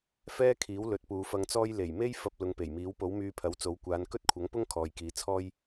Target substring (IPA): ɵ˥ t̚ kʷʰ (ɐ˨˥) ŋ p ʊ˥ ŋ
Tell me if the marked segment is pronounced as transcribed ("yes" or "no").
yes